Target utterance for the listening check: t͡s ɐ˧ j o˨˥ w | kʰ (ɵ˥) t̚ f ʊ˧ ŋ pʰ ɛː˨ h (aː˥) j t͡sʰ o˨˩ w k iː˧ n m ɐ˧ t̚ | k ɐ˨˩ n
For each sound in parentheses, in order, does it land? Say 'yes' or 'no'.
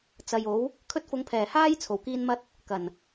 yes, yes

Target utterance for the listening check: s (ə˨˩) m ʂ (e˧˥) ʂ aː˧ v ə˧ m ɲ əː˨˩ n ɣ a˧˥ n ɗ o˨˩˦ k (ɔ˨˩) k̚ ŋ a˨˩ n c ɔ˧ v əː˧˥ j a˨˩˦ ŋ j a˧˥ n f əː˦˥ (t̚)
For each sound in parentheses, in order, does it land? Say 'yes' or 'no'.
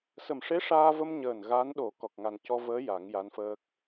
yes, yes, yes, no

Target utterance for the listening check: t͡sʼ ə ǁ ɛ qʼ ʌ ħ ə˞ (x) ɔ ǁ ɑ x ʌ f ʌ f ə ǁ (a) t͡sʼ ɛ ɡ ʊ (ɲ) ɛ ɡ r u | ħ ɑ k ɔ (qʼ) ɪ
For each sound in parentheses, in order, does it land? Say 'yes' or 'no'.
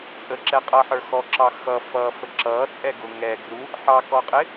yes, no, no, yes

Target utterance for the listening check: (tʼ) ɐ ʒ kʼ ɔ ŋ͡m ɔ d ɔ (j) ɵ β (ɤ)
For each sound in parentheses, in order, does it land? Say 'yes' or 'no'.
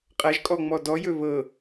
no, yes, yes

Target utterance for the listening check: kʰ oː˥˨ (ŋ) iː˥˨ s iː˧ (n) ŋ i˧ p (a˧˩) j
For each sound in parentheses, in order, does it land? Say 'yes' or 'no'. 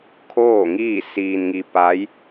yes, yes, no

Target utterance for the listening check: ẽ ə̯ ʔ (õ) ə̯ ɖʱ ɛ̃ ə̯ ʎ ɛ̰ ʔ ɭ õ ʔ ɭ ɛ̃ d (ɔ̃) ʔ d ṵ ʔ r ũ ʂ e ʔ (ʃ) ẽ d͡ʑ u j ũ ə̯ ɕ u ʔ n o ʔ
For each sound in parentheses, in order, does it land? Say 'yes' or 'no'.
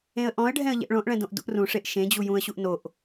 no, no, yes

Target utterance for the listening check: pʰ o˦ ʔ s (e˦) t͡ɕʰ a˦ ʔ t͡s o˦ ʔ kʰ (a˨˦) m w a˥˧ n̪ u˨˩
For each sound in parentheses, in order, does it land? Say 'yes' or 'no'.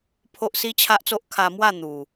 no, no

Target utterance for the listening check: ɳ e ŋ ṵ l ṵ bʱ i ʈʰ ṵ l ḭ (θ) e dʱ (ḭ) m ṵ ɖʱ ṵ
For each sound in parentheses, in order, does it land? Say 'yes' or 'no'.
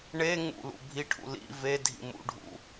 no, yes

